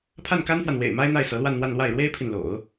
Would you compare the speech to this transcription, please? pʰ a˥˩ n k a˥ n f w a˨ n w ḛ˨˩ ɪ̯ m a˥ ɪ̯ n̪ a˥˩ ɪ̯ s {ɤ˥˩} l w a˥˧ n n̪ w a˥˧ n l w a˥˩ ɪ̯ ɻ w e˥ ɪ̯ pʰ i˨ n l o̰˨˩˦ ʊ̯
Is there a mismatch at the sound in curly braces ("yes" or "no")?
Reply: yes